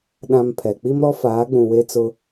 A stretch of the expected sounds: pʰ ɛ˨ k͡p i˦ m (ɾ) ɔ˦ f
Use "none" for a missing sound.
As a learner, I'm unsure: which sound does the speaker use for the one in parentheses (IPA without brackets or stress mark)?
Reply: ɾ